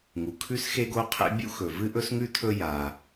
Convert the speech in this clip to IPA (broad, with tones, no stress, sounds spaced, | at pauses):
ŋ u˩ kʰ ʉ˥ s x e˥ ɡ o˥ qʰ ḛ˥ bʲ ṵ˥ x ɵ˩ v ɨ˥ ʔ ɵ˥ s ŋ ʉ˥ tʰ ɵ˥ j a˩